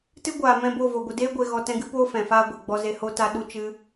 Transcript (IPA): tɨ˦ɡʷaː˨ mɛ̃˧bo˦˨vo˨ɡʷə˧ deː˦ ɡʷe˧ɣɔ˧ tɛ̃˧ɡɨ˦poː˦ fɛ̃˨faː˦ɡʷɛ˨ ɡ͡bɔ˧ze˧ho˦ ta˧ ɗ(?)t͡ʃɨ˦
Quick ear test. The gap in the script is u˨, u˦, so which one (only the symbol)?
u˦